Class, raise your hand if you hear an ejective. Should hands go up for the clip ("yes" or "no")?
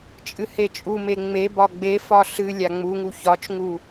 yes